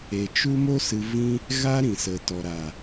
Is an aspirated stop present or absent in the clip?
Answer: absent